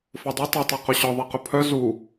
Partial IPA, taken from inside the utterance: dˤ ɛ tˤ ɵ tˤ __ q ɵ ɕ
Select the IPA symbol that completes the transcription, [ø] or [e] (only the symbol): e